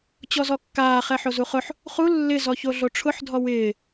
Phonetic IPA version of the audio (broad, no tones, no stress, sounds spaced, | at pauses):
t͡ɕ ɔ z ɔ kː aː χ ɛ ħ o z u χ ʊ ħ | χ u lː ɪ z ɔ ç o ɮ o ʈ͡ʂʰ ʊ ħ dʱ ɔ w ɪː